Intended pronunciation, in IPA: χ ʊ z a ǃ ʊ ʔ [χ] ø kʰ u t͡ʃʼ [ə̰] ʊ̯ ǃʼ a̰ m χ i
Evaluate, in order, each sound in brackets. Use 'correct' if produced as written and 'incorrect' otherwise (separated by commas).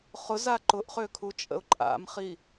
correct, correct